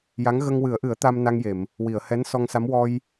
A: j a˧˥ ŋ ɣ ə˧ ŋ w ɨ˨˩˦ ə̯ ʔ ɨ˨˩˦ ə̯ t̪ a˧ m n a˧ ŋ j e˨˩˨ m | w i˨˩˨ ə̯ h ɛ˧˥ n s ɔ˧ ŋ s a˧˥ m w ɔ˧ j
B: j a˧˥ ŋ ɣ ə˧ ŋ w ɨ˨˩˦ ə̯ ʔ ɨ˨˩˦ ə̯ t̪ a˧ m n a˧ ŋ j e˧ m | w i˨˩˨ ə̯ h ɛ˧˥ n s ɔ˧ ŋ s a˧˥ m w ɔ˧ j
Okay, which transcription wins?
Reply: A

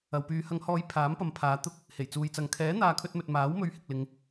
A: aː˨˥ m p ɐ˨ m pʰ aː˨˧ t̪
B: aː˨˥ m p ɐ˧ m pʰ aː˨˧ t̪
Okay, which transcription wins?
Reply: A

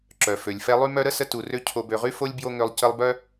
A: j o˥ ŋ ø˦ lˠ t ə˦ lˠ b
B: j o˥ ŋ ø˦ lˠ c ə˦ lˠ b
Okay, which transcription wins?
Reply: B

